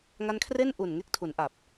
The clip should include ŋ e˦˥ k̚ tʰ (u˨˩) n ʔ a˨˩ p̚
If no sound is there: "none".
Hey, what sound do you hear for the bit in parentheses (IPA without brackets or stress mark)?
u˩˦